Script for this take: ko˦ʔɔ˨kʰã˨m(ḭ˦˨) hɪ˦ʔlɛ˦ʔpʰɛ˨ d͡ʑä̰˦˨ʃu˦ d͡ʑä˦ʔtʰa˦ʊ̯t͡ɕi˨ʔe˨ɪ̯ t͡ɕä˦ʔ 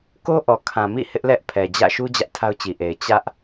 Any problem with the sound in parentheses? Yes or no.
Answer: no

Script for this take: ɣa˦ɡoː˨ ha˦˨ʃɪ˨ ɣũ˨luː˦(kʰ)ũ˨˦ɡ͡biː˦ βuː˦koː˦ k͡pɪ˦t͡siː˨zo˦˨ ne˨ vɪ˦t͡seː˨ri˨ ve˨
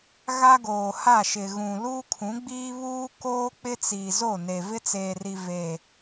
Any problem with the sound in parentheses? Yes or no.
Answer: no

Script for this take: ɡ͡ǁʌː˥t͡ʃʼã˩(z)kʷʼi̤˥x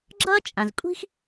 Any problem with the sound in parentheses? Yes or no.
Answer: no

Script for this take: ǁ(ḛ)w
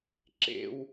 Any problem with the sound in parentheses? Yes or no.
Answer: no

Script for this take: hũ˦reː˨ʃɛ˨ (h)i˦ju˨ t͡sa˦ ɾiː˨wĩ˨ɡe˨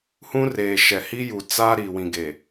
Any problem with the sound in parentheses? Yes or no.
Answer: no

